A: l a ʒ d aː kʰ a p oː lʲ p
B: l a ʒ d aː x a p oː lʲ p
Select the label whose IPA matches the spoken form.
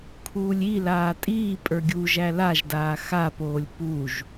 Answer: B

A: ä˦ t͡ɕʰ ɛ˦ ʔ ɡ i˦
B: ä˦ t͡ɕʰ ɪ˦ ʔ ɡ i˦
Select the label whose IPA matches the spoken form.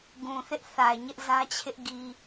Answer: B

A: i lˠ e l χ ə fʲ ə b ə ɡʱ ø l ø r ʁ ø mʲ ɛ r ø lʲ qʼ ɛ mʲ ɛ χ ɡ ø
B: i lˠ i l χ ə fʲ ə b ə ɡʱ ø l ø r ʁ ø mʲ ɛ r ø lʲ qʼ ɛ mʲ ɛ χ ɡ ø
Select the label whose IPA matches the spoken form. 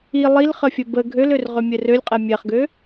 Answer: B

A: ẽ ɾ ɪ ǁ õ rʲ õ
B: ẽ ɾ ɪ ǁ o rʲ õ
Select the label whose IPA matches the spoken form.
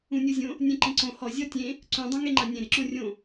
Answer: A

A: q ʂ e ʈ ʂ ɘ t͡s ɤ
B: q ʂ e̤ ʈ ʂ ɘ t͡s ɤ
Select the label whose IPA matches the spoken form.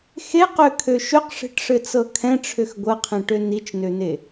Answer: B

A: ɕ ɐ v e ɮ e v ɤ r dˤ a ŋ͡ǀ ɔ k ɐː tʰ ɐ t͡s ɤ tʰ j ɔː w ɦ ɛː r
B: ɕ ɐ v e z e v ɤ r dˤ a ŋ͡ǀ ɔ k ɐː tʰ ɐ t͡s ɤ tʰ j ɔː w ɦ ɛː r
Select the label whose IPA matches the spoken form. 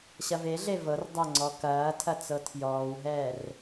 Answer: A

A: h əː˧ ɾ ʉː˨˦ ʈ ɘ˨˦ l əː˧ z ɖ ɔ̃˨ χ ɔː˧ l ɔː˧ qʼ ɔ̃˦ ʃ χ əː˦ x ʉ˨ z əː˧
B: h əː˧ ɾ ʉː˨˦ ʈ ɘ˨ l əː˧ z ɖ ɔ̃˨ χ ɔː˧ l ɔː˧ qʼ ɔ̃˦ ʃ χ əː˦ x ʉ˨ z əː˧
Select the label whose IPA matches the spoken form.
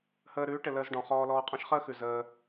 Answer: B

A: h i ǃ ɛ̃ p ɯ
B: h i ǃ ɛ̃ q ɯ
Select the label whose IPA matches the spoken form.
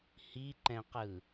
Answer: B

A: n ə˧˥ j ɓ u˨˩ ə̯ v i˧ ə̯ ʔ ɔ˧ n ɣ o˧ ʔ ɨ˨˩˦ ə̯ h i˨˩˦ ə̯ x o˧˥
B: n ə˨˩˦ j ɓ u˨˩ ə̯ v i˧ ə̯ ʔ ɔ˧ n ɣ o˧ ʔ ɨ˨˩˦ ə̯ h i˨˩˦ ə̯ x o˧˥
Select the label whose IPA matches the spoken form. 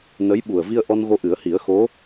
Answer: A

